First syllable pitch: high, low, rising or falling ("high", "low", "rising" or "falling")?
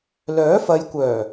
rising